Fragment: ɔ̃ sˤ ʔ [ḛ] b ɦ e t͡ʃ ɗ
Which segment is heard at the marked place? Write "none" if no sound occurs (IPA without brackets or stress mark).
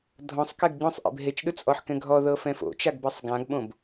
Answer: ḛ